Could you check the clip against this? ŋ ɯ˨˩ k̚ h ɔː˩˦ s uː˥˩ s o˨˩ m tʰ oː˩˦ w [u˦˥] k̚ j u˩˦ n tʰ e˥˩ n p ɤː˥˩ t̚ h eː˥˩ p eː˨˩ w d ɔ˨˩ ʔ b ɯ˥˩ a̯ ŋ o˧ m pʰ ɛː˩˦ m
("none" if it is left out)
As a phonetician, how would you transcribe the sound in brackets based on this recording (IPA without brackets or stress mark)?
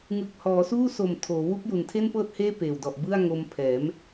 u˦˥